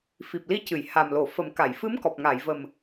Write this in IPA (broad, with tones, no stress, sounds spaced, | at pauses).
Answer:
f i˨˩ p̚ l i˧˥ c ɨ˨˩˨ j h a˨˩ m l o˨˩˨ f ə˨˩˦ m k a˨˩˨ j f ɨ˧˥ m k ɔ˨˩ p̚ ŋ a˨˩˨ j v ə˨˩ m